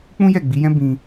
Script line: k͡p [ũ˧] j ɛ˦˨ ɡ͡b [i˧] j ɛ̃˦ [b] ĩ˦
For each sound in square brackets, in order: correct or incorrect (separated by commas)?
incorrect, incorrect, correct